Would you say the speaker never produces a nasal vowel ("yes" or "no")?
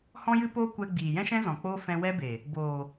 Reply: no